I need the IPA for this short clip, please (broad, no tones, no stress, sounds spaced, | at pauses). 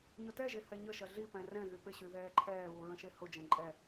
ɲ ʊ t ɛ ʒ e h ɛ ɲ ə ʃ ɐ ɮ i p ɛ̃ r ɛ̃ ɣ y p ɪ ɕ y ð ɛː ǃʰ ɛː β u ɹ ə̃ ʃ e h ʊ d͡ʒ ɛ̃ ǃʼ ɛ